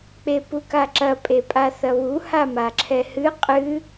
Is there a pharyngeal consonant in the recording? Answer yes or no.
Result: no